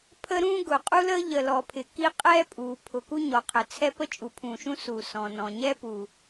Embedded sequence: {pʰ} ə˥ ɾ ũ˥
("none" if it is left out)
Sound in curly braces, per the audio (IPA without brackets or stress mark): pʰ